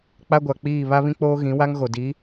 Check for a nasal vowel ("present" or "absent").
present